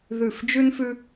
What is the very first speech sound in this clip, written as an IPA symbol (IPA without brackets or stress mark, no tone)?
ð